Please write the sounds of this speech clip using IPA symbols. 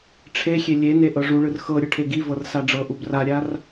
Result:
ʈ͡ʂʰexʲe lʲene ʔɤʐuɭɯr xɤɾʲɯ ʈʰeɡivɤr saɖ͡ʐɤʔub raɾʲar

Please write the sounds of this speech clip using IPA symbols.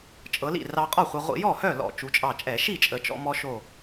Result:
t͡ʃʼɤ˩˧lḭ˥˩ rɑ˧qʼɔ˥˩χʷɛ˧ ʁʷḭ˧˩˧jɔ˥˩hœ˥˩lɔ̰˧˩˧ t͡ʃu˩˧t͡ʃʼɑ˧˩t͡ʃʼɛ˧˩˧ʃi˥˩ t͡ʃʼə˩˧t͡ʃɔ̰˧ mɔ˧ ʃo˧˩

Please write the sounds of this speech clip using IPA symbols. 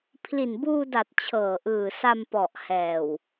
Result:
pʰli˨˩nbuː˧da˨˩t̚ t͡ɕʰɤː˨˩ʔɯː˨˩sa˧m pɔ˨˩ʔ hɛː˨˩w

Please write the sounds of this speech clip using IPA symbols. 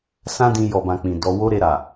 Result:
sã˦dĩ˧ jɔ˨bã˨ k͡pĩ˨dɔ˧ wo˦ɾe˧ɾa˨

